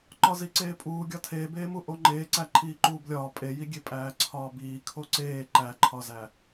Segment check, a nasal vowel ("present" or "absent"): absent